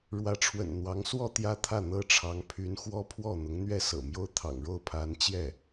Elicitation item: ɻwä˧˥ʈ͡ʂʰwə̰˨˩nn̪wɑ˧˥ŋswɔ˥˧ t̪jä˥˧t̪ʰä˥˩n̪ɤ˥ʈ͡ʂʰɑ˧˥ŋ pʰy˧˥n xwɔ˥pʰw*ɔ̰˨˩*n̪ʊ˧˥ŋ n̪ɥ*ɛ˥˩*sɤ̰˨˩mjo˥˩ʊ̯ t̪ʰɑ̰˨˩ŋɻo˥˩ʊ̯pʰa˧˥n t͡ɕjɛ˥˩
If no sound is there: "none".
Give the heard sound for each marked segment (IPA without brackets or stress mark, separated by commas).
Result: ɔ˥˩, ɛ˥˩